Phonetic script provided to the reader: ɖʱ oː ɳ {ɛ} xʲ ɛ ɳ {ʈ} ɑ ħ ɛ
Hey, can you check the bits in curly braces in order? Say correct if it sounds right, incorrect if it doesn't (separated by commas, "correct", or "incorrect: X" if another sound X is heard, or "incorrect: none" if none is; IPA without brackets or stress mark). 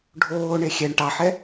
incorrect: e, correct